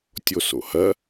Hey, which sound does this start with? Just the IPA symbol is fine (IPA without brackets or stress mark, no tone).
tʲ